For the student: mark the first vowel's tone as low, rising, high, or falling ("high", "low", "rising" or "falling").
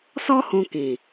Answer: high